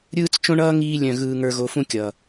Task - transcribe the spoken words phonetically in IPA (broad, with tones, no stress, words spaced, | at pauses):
ɾʲɯː˦t͡s t͡ʃõ˦ɳʌː˦ ŋiː˦lʲœ̃˦˨ ɣɯː˧ŋə˞˧ɣo˧ fũ˦kʲʌː˨